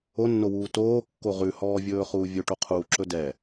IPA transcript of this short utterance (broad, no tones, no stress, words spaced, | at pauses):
onːowuː toːkːo ʁʉhɔːvʲɵːχuː vʲɵʈoqʰuːǁɵ dɛ